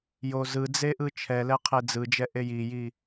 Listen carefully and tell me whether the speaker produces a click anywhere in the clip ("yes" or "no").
no